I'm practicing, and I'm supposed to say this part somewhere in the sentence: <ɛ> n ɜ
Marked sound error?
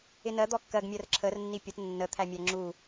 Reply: yes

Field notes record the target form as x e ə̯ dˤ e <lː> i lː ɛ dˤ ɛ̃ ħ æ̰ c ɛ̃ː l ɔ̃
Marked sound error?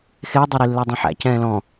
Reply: yes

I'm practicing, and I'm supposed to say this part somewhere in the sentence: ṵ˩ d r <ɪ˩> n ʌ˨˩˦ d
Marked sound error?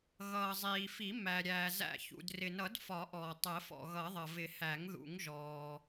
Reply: no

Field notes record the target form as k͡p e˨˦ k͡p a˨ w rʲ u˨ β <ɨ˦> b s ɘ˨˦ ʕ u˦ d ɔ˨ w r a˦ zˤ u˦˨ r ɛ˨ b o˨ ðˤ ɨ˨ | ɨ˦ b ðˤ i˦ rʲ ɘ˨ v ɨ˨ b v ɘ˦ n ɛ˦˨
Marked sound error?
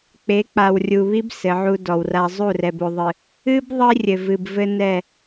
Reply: yes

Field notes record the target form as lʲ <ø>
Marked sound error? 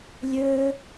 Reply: no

